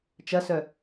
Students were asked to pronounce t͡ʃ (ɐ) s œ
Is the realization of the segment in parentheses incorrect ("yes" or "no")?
no